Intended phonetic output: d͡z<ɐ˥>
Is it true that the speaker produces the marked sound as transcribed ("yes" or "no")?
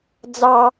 no